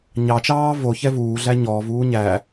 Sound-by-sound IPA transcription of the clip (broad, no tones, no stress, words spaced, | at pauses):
ɲɑt͡ʃɑː vo çɛvuːɮæ ɲɔːvuː ɲæ